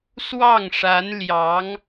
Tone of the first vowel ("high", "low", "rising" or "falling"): falling